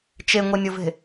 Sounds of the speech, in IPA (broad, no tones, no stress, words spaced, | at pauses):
t͡ʃeŋʷenʲɵve̤